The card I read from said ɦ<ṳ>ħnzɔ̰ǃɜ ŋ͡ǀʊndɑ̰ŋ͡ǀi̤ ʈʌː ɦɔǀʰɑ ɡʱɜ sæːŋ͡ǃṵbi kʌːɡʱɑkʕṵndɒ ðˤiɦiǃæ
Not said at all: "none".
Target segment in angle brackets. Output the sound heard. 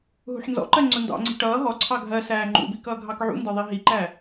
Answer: ṳ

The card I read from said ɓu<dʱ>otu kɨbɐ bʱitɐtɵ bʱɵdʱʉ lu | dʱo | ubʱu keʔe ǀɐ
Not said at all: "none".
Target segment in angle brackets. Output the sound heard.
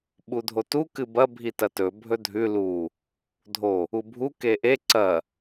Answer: dʱ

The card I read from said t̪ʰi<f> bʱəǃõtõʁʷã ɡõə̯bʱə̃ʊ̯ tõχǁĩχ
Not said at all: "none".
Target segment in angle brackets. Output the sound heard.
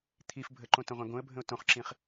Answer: f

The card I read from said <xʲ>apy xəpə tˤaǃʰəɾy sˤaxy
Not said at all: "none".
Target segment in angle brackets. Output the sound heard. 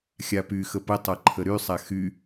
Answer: xʲ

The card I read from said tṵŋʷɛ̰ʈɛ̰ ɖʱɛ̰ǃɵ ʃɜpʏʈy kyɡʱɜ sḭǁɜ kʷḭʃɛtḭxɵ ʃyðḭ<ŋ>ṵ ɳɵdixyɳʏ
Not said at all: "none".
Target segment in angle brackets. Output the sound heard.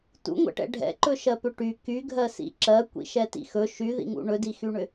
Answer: ŋ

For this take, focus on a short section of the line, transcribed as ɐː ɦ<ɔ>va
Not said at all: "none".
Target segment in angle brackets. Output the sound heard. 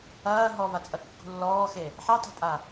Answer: ɔ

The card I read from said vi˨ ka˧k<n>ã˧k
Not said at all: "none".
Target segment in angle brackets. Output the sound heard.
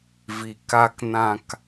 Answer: n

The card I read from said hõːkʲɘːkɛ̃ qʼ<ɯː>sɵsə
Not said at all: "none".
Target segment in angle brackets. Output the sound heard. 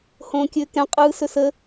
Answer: ɯː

